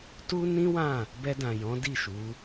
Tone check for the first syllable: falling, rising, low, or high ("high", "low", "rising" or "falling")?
high